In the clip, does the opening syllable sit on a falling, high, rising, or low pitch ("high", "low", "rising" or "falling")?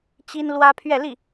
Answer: high